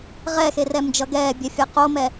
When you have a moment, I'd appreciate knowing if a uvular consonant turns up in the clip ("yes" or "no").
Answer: yes